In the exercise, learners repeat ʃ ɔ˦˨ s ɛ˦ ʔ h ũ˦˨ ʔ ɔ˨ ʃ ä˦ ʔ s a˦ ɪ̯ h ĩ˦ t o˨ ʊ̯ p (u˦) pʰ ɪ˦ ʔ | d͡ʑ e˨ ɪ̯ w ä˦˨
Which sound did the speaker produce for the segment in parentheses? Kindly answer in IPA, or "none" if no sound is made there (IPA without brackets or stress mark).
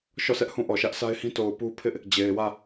u˦